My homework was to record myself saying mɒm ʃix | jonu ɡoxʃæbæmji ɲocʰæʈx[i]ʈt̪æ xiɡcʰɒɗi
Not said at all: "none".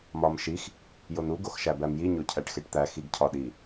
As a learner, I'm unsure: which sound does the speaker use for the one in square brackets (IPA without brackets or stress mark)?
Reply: e